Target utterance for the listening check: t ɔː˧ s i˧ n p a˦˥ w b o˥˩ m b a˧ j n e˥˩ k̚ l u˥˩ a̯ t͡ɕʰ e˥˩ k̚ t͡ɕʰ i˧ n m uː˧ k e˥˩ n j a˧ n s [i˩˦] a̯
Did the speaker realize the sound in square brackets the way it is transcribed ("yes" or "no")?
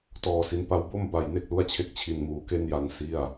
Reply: no